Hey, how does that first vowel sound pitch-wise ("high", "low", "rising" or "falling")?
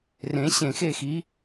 rising